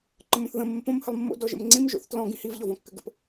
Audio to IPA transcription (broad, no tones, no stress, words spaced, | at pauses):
ǃə̃mõθðə̃ məmpõm həlˠmːo̰ dɔʒə̰mŋ͡ǀĩm ʒo̰θtlɔ̃ ɡĩhiv ʎɔvɔ̃kːɘɡə̰p